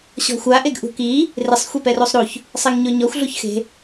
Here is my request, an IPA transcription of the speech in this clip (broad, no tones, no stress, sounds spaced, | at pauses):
ɕ ɔ̤ xʷ a ʔ e ɡ ʔ ṳ k i | r ɪ sˤ xʷ i p ɛ r u sˤ ɾ u ç | sˤ i ŋ ɲ o ɲ ɔ xʷ ɮ u ç x e̤